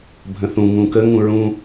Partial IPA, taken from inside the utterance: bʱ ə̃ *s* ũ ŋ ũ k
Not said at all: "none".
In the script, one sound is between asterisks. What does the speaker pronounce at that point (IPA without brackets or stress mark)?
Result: θ